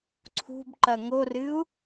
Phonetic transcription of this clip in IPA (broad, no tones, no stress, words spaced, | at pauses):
ǀʰṳbǃɐ ŋorɨu̯